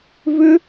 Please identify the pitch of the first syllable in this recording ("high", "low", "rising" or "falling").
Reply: high